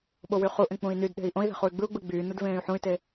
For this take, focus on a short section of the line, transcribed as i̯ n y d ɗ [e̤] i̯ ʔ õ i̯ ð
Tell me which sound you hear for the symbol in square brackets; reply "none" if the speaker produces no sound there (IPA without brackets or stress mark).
e̤